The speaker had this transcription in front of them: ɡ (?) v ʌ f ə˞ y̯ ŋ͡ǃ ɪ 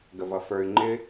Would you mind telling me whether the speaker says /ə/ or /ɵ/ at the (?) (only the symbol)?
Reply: ə